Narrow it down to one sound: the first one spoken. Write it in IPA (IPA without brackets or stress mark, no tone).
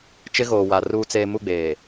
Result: t͡ʃ